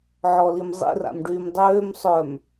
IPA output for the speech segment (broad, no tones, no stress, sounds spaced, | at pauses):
ʕ ɔ l i m zˤ ḭ r a̰ m ɖ yː m dˤ øː m sˤ œ m